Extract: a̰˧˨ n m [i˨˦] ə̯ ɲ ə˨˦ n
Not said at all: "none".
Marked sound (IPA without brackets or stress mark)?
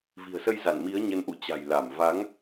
i˨˦